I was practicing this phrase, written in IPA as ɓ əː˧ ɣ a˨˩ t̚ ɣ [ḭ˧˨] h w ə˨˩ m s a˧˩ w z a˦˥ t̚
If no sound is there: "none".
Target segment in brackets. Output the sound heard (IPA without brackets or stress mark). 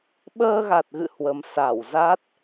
ɨ̰˧˨